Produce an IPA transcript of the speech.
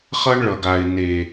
χʌ˦ɳɭʌ˨ɡa˨ɪ̯ ne˨

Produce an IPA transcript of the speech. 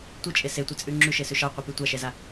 tʷit͡ʃʼe setʷɛt͡sʼʉ ŋ͡ǁʉʃesʉ ʃɑqʷipʉ tʷaʃɛza

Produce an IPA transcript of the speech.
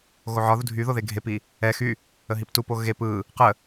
ɣoʕɒðu dʱy ðoðeɡʱepi | ɛ xy | əɦiptupo ɣep ɯ | qə

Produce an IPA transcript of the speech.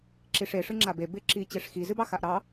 ǁiʂe ʂɨŋ͡ǁabe bɪ ǁi t͡ɕeʂxi zɨbɑxaʔɾɑ

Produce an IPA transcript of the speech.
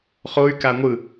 χoy̯ kaŋʷɯ

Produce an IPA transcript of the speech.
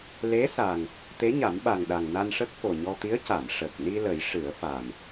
le˧˥sa˨˩ŋ | t̪e˧˥ɲa˨˩˦mɓa˨˩ŋɗa˨˩ŋ na˧nʂə˦˥k̚fo˨˩ɲɔ˧ t̪i˧˥ə̯ca˨˩˨m ʂə˨˩k̚ni˧ lə˨˩˦jʂɨ˨˩˦ə̯fa˨˩m

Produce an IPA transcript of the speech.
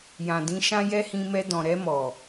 jã˨dĩ˨˦ʃã˦jɛ˦ hĩ˧mɛ˧dɔ̃˨ ɾɛ˧mɔ˨

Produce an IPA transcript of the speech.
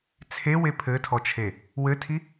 t͡sʰewe pʰɘtʰɔt͡ʃʰe | wɘtʰi

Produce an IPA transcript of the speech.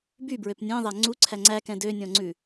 bybɹøp nʲẽðˤæ ŋ͡ǀuǀʰæ ŋ͡ǀækɛ̃ dønʲɔ̃ŋ͡ǀʉ

